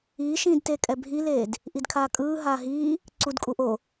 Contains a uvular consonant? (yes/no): no